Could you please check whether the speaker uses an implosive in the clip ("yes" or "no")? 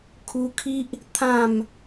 no